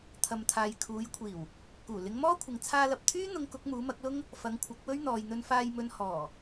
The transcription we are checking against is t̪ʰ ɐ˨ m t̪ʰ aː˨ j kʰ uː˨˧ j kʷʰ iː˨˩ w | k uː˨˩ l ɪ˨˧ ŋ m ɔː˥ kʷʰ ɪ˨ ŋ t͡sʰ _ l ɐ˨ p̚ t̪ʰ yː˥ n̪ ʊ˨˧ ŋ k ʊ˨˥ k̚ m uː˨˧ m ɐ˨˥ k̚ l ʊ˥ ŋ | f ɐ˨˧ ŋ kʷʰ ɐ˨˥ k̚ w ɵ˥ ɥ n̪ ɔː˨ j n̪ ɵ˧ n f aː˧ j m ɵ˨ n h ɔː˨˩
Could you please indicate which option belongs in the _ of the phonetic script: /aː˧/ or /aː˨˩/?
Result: aː˧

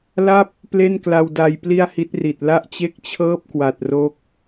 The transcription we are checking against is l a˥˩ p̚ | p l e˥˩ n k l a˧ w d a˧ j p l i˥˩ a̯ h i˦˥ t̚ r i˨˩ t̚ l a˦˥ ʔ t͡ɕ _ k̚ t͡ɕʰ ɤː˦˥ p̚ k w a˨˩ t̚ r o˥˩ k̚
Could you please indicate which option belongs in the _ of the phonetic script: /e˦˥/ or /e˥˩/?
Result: e˦˥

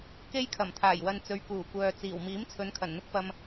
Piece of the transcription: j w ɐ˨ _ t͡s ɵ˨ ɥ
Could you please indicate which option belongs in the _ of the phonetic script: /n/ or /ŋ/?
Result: n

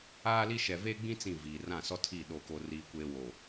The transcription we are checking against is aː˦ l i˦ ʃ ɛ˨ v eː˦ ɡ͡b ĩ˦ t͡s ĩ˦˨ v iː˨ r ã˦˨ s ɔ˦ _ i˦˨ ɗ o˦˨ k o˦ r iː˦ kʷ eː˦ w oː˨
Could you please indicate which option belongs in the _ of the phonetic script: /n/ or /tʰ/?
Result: tʰ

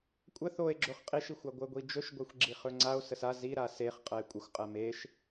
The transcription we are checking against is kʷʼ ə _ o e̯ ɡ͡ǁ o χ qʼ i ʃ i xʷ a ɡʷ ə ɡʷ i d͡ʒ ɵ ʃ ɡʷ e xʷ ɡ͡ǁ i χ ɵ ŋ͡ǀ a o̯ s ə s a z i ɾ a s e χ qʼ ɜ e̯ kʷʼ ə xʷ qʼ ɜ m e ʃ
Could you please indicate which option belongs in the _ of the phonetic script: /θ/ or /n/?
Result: θ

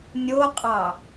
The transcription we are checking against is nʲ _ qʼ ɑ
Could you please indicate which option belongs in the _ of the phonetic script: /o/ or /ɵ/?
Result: o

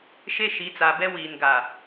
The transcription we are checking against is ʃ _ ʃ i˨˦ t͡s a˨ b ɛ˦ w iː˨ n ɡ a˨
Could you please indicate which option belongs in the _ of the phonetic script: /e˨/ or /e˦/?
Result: e˦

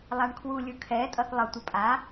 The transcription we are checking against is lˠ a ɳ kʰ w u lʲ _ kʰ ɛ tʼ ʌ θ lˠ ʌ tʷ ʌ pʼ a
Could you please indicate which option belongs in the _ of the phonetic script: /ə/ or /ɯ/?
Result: ɯ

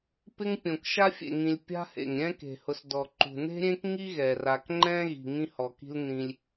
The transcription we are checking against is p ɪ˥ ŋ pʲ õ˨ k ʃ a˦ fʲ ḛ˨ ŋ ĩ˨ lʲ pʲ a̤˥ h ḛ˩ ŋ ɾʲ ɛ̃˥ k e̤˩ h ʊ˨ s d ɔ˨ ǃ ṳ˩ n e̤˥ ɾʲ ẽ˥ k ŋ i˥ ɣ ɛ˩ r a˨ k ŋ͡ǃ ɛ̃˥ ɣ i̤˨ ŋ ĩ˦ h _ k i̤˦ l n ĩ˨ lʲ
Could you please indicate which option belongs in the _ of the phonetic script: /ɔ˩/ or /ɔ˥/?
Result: ɔ˩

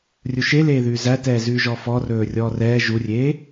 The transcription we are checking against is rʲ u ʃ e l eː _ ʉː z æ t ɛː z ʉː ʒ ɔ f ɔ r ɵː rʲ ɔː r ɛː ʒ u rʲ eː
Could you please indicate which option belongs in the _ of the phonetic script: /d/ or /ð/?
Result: ð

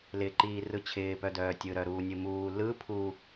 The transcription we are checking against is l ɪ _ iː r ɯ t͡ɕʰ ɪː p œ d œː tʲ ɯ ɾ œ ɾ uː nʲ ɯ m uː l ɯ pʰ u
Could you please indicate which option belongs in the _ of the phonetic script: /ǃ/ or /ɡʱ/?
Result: ǃ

